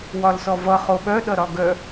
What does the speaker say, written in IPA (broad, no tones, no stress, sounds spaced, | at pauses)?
w ɒ l s ɔ v ʌ χ o ɓ œ ɗ ʌ ɾ ɒ ɡ œ